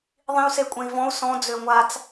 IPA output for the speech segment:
ðˤ ĩ u̯ s e kʷʼ ẽ i̯ v ɔ̃ u̯ s ɔ̃ d͡z ø ŋʷ a t͡s

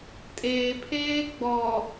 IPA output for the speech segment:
tʼ eː pʰ eː ɡ͡b ɔ

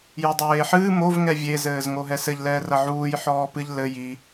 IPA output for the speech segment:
j o dˤ eː ħ ɨː m o v ŋ ɛ vʲ e z ɘː z ŋ o ɦ ɛ s ɘ ʎ l ɛː r ɐ ʕ uː j ħ ɔː p ɨ ʎ l ɘ j i

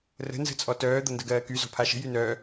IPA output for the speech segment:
r ə̤ n z ə̤ t͡sʼ ɔ t œː d̪ ɤ n d ə ɡ ɜː k y z ɔ̤ pʰ a ʃ ə̤ j y n œː

